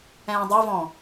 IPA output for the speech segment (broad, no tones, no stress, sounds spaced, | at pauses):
ɛ̃ː dˤ ɛ v ɔ̃